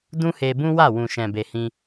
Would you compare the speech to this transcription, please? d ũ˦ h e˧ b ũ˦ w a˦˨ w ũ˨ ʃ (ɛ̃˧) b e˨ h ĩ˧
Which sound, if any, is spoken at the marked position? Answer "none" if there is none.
ɛ̃˨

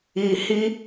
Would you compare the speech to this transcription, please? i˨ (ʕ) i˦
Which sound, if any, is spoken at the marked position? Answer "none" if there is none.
h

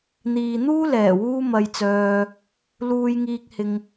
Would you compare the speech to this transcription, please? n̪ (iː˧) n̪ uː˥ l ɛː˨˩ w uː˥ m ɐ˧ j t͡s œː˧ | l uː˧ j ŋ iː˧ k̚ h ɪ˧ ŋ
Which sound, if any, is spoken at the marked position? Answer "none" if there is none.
iː˨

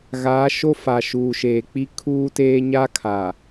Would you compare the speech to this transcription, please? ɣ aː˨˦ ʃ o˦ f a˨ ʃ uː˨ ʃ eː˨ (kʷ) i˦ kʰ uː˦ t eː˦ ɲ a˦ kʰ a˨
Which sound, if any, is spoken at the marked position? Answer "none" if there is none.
k͡p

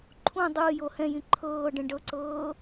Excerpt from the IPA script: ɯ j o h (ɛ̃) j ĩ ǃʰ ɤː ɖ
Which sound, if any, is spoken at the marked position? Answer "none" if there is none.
ɛ̃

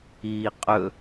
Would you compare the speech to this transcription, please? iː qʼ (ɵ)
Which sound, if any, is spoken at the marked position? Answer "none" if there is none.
ɵ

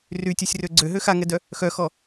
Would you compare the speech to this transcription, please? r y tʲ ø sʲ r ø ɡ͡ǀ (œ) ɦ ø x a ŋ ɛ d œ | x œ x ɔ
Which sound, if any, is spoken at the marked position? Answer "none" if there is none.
ø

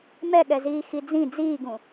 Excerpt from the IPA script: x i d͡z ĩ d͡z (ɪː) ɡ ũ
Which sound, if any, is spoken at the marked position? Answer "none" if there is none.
iː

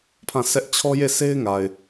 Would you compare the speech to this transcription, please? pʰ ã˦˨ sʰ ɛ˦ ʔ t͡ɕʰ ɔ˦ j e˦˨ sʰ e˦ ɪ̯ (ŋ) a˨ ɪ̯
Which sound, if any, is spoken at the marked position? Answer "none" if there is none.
ŋ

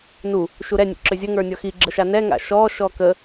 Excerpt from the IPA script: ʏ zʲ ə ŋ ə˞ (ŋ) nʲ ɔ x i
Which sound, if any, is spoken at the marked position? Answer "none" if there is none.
none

